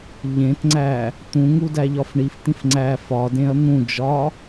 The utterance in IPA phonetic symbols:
ʎ ẽ t ŋ͡ǀ æ | t̪ ũ ŋ u d æ ʎ ɒ f ɳ i f t̪ ĩ f ŋ͡ǀ æ f ɒ d ẽ ɐ̯ n̪ ũ d͡ʒ ɒ

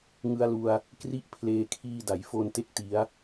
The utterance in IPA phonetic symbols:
ŋ ɯ˧ a̯ l u˧ a̯ | k r i˥˩ ʔ pʰ l eː˧ kʰ iː˧ d a˩˦ j f o˧ n t e˥˩ k̚ t i˦˥ a̯

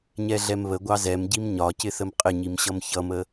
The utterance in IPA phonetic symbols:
ɲ ɛ ɮ ɛ m β ə ɡʷ ɑ z ɛ m ɟ i m ɲ ɒ c ɪ θ ə m qʼ ɪ ɲ i m ɕ ʌ m ç ʌ m ə

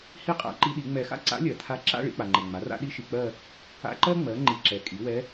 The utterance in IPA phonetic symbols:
h i˥ qʼ a̰˧˥ ǃ i˧˥ ɗ i˩˥ ŋ͡m ɛ˨ x a̰˥ ǀ a̰˧˥ lʲ ɜ˨ tʰ a˧˥ ǁ a̰˥˧ ɭ ḭ˥˧ k͡p a˨ ŋ͡ǃ ɛ˨ ŋ͡m a˩˥ r a̰˥ ɗ i˧˥ ʃ i˨ k͡p ɜ˥˧ | a̰˧˥ ǃ ɜ˥ ŋ͡m ɜ˩˥ ŋ͡ǃ i˨ ǁ ɛ˩˥ kʼ i˩˥ w ɛ˧˥

